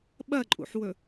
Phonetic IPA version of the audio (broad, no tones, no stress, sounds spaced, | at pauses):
ɓ ɐ ǃʼ ṵ ħ w ɵ